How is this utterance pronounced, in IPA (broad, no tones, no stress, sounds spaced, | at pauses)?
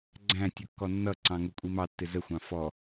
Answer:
ɡ͡ǀ æ̃ tʲ ʊ kː ɔ nː ʌ ǀ ɑ̃ ŋ u kʷʼ i m ɑ tː ɪ z ə xʷ ɑ̃ f ɔ